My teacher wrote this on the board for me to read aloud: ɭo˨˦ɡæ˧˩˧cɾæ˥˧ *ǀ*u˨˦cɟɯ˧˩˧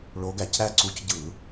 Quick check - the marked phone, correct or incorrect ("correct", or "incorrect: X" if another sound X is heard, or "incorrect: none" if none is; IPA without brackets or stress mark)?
correct